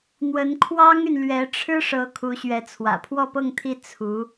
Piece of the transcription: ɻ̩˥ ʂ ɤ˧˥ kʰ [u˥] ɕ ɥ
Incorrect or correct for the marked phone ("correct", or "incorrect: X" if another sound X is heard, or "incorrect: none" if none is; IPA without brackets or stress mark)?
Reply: incorrect: u˧˥